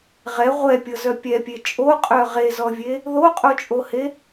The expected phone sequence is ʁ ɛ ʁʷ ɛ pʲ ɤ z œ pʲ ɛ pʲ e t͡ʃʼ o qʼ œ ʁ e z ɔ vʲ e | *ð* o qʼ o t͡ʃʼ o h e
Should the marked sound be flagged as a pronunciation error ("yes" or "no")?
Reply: no